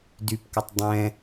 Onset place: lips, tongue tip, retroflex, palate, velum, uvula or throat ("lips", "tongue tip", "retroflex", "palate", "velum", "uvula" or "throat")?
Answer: tongue tip